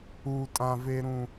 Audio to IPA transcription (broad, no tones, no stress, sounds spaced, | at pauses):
u tʼ ã v e ɾ ũ